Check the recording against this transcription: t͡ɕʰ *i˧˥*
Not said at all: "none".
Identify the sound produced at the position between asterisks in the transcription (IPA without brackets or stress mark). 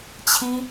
i˥